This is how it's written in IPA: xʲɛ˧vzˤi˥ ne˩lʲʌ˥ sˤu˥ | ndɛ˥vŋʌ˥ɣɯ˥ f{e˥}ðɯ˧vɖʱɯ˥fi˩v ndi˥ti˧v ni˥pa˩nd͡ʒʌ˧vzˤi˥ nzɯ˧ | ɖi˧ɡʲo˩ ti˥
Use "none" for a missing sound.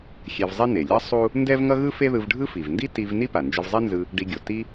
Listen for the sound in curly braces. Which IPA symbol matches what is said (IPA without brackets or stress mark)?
e˥